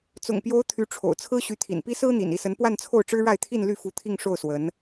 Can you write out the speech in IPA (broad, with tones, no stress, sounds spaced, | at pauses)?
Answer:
t͡s ʊ̰˨˩ ŋ p j o˧˥ ʊ̯ t̪ʰ y˧˥ ʈ͡ʂʰ o̰˨˩ ʊ̯ t͡sʰ ɹ̩˥ ɕ y˧˥ t̪ʰ ḭ˨˩ n p i˥ s ɹ̩˥ n̪ ḭ˨˩ n i˥˩ s ə˧˥ n p w a˥˧ n t͡sʰ o˥˩ ʊ̯ ʈ͡ʂ ɻ̩˥ ɻ a˥˧ ɪ̯ t̪ʰ i˥˧ n l y˥˩ f u˧˥ t̪ʰ i˥˧ ŋ ʂ o˥˩ ʊ̯ s w ə˧˥ n